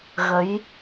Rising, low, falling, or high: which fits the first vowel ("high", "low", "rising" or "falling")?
rising